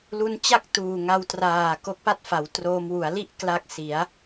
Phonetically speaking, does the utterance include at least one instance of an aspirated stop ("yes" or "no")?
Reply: no